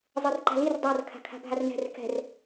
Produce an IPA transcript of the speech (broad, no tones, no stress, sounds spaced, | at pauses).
zˤ ɤ r ǃ a̤ l i r dˤ a r kʰ a̤ kʰ a̤ bʱ a r n ɛ̤ r k ɛ̤ r